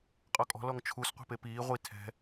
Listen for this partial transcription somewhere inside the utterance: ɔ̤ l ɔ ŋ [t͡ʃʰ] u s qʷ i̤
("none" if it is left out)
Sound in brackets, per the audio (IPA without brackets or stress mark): t͡ʃʰ